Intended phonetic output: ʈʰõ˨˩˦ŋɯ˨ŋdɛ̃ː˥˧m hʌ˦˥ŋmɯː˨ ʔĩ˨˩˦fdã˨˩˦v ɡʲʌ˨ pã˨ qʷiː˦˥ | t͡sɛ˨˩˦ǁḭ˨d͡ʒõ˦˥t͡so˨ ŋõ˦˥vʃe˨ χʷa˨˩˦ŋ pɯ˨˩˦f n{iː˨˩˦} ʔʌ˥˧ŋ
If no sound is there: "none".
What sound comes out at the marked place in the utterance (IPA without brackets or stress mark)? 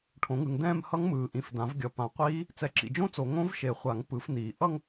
iː˨˩˦